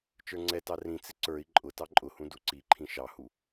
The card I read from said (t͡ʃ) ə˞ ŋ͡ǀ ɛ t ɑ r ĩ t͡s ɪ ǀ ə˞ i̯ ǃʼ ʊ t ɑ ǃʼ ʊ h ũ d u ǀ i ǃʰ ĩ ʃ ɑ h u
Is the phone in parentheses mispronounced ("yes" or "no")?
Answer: no